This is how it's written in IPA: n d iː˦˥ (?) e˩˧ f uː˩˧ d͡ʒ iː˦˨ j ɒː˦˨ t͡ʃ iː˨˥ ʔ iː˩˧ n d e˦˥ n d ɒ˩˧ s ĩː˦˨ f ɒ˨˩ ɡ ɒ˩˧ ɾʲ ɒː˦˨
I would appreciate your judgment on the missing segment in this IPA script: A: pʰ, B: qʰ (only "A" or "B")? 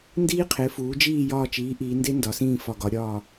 B